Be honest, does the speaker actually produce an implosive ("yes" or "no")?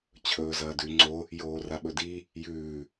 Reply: yes